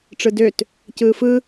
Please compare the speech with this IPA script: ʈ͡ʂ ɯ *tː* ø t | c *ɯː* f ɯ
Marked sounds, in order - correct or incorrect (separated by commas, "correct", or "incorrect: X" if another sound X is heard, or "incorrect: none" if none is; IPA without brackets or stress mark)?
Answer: incorrect: d, correct